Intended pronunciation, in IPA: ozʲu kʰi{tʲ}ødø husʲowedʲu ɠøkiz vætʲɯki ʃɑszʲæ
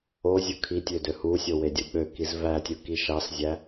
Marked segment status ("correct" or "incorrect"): correct